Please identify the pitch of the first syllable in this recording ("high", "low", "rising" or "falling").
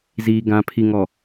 low